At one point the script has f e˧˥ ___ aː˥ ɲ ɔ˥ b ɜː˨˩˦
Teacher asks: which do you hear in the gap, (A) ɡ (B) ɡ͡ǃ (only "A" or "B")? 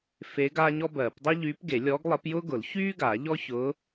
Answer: A